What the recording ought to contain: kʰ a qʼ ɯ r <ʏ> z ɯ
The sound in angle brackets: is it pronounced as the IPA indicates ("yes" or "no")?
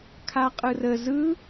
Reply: no